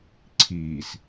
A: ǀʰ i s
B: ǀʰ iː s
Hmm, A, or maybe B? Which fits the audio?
B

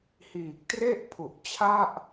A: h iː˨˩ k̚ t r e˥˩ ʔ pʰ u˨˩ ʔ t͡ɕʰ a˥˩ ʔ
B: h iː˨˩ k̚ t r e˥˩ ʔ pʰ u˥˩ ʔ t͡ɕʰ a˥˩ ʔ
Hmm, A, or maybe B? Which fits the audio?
A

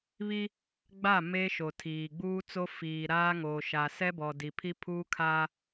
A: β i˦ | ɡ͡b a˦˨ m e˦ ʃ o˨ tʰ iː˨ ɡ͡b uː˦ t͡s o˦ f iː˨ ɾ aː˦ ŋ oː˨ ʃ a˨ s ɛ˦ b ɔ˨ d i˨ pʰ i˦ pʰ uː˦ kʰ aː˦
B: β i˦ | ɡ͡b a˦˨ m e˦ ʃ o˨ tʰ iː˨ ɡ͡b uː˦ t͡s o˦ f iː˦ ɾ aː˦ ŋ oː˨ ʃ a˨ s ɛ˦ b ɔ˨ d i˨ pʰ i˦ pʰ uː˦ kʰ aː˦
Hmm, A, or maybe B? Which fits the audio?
A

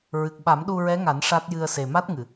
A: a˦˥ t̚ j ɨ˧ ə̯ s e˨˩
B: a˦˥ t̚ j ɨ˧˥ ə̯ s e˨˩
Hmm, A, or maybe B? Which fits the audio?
A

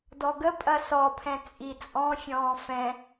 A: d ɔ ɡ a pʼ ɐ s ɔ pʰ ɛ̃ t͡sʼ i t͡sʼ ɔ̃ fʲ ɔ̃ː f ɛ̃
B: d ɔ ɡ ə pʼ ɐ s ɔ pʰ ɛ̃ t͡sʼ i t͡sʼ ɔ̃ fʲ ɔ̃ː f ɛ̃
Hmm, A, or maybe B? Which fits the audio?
B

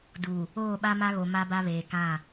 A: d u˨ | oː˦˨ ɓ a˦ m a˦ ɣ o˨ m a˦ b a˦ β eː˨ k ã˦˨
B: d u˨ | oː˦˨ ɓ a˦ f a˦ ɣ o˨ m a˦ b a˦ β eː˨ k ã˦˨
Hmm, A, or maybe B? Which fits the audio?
A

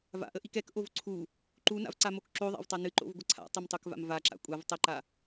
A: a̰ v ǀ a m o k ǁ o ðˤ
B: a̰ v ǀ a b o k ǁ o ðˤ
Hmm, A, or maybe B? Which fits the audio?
A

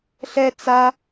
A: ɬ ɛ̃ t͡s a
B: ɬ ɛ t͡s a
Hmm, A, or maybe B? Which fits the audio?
B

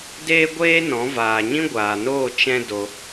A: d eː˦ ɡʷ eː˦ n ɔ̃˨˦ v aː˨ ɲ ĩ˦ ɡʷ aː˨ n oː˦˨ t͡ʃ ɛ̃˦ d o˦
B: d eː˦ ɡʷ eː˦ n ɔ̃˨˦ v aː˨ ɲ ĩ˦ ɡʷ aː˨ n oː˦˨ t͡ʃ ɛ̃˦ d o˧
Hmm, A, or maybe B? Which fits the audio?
B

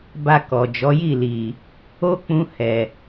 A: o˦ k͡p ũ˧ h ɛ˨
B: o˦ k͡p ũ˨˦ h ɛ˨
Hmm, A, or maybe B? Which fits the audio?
A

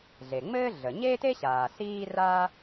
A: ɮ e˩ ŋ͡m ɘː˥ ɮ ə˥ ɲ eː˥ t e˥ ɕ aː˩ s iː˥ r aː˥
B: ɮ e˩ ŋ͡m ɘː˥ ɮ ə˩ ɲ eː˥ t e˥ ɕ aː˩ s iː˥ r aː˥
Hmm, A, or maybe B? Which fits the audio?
B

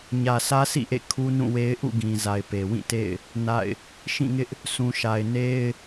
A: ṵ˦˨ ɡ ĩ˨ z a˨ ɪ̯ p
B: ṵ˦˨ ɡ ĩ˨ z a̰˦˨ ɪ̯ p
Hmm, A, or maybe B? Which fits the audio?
A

